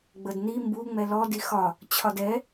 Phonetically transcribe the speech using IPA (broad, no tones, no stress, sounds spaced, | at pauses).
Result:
ɡ͡b ə d n i m b u ŋ͡m ɛ l ɔ d i x ɒ | t͡ɕʰ ɒ d ɛ